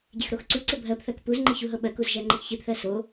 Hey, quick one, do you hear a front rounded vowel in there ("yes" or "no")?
no